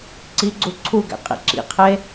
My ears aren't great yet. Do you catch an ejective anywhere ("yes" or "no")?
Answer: yes